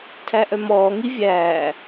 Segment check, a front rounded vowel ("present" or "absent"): present